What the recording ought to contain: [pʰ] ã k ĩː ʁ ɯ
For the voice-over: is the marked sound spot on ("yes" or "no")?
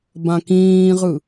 no